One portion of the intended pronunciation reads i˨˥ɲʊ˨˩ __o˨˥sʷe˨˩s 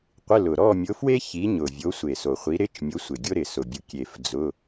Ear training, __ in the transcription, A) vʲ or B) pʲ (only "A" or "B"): A